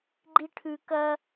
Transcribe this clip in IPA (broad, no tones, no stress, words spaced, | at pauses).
ɡ͡ǃiʈʰʉ kɐ